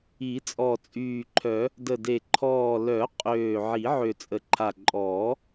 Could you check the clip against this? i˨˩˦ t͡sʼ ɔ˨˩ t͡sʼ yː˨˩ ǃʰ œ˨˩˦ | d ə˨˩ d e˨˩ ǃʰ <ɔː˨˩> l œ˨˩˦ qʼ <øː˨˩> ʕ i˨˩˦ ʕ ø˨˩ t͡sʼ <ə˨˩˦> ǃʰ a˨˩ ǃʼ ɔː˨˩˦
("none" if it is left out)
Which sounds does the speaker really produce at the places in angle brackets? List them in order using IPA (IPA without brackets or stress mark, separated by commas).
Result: ɔː˨˩, øː˨˩, ə˨˩